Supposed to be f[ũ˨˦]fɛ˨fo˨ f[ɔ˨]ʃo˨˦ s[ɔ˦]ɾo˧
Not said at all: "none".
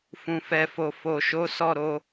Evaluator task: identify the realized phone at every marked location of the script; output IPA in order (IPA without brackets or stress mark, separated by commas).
ũ˨, o˨, ɔ˦˨